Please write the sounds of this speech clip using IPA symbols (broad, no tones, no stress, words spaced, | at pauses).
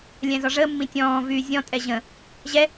lʲɛ̃zɔʐəːmːĩ tʲɔ̃ːvyː zʲɔ̃tʼɛ ʑə̃ | ʑɛ